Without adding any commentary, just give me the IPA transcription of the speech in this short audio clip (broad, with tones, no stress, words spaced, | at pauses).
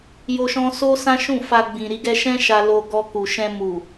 jo˦ʃɔ̃˦ so˦ sã˦ʃũ˦˨fa˧ ɡ͡bĩ˨ ɾi˧ɡɛ˧ʃɛ̃˦ ʃa˧lo˧ɡɔ˧ku˨ ʃɛ̃˧ mu˨